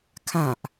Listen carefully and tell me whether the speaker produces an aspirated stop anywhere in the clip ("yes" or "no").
yes